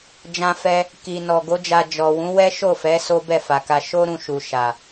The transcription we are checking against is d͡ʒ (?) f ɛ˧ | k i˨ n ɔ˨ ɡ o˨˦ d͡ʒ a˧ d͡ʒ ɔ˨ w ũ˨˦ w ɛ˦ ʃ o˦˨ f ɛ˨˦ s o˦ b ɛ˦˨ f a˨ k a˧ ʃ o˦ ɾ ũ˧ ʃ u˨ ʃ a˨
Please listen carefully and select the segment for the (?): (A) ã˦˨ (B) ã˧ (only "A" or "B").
B